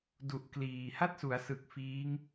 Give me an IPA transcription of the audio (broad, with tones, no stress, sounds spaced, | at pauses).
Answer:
d u˨˩ ʔ k l iː˨˩ h a˥˩ t̚ s u˩˦ a̯ s ɯ˨˩ k̚ f iː˦˥ ŋ